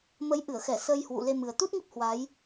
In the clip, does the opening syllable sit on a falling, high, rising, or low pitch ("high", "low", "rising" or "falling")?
rising